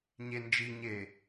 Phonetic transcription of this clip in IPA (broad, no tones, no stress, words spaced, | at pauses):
ɲend͡ʒiɲeː